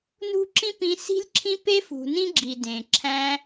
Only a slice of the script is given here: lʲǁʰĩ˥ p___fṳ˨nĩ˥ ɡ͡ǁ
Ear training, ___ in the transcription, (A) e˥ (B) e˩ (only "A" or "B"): A